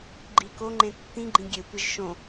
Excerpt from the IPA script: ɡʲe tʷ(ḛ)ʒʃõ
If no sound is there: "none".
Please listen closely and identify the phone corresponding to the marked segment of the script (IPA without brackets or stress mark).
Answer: e